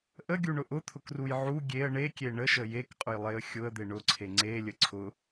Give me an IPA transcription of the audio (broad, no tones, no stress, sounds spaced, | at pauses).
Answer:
ʔ ə ɡʲ u ɳ ʊ ʔ ʊ t̪ʰ ʊ k r u j ʕ u ɡʲ e ə̯ ɳ e kʲ e ɳ ə ʃ ə j e k qʼ ʊ j lˠ e ə̯ xʲ ʊ ə̯ d̪ e ɳ ʊ ǀʰ e ŋ͡ǀ e lʲ ə ǀʰ ʊ